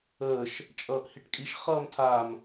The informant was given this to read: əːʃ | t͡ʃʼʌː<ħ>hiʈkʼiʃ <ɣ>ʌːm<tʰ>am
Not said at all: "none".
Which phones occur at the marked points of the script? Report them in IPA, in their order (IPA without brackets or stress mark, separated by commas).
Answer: ʔ, χ, tʰ